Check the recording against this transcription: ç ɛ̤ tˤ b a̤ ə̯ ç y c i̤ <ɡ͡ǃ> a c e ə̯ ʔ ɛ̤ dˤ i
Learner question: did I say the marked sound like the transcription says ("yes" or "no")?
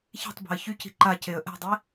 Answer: no